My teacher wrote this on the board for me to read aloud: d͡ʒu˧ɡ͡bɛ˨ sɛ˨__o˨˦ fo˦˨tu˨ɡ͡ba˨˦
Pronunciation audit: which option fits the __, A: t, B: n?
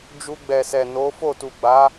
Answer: B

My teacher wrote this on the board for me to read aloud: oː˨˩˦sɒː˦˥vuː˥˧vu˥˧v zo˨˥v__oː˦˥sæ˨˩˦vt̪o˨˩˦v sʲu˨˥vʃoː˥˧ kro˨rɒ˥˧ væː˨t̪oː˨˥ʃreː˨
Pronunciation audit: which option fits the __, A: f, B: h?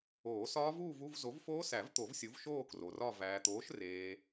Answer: A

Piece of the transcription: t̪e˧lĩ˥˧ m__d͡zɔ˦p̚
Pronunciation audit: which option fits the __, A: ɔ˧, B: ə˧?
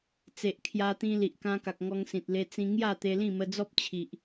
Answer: B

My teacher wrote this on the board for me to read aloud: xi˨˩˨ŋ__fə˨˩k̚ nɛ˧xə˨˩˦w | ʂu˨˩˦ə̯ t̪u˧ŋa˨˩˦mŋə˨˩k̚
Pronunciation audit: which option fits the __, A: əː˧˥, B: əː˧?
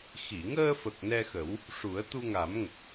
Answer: B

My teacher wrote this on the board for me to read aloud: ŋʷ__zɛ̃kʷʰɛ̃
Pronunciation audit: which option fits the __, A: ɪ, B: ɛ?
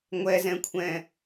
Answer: B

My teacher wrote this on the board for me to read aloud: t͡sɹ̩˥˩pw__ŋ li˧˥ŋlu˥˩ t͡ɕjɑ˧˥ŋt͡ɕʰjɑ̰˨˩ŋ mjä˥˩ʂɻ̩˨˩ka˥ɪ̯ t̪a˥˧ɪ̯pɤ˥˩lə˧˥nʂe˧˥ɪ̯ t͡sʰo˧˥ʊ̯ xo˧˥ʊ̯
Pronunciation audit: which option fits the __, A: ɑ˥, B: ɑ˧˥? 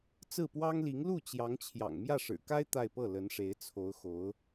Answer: A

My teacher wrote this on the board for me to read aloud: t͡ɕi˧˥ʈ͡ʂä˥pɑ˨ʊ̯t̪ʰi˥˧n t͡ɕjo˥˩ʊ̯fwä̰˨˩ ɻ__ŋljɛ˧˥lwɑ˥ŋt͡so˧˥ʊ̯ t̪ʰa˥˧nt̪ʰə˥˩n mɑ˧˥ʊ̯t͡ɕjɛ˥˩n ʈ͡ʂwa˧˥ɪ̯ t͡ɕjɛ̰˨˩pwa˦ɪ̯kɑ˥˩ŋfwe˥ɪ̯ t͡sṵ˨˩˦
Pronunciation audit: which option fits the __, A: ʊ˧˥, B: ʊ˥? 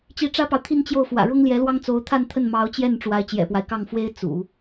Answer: B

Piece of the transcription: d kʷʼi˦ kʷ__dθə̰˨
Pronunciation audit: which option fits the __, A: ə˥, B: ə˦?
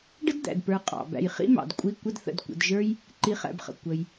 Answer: B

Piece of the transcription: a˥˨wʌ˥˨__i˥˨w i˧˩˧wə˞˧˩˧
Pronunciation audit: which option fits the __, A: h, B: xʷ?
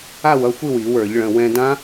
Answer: B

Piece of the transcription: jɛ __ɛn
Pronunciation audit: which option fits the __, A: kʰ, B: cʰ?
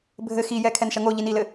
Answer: A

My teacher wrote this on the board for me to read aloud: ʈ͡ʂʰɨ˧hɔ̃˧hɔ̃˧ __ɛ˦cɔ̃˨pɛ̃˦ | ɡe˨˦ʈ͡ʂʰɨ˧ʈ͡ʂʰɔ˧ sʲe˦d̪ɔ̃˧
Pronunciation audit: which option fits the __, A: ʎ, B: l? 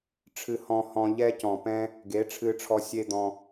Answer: A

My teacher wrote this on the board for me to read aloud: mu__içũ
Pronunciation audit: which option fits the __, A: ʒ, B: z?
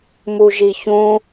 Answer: A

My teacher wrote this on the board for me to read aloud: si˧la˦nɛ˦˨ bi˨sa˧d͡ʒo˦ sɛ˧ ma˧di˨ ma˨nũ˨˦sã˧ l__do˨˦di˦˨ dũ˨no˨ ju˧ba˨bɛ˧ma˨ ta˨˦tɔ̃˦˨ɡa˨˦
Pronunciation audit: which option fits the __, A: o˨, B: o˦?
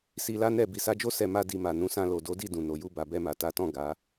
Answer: A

